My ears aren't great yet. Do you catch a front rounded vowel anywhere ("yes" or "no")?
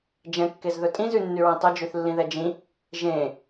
yes